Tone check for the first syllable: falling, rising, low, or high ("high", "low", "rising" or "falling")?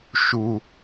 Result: low